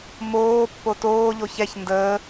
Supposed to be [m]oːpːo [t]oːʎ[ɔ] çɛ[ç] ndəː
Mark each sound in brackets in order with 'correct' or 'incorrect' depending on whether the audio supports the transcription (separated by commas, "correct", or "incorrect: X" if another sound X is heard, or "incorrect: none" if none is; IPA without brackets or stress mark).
correct, correct, incorrect: o, correct